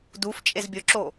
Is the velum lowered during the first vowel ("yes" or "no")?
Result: no